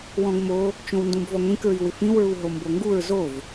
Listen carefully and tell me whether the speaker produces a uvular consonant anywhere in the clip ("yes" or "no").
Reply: no